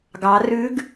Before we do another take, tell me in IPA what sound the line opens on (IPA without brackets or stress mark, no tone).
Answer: ɡ